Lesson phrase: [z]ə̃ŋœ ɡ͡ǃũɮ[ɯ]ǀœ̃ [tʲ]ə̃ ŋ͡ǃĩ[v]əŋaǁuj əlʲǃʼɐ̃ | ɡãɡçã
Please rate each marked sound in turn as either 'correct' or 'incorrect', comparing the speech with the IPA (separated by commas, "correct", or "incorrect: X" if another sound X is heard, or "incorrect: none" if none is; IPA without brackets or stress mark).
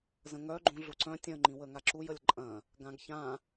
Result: correct, incorrect: u, correct, incorrect: w